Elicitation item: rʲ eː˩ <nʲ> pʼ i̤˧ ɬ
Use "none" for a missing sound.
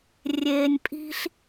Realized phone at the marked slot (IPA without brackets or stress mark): nʲ